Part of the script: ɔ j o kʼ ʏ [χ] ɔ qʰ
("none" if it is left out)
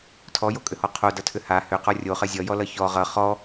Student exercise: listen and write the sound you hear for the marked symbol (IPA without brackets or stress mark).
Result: h